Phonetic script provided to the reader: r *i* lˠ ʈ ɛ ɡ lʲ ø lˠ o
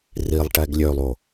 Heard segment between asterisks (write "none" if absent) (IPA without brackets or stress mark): i